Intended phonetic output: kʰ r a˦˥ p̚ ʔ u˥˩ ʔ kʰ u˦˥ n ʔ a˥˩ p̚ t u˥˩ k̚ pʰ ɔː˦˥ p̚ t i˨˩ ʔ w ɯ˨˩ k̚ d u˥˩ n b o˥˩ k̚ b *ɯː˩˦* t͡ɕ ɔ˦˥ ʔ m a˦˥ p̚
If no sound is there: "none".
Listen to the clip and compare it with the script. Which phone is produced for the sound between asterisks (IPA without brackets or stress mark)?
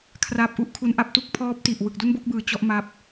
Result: ɯː˩˦